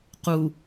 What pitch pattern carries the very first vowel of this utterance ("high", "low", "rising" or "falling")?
low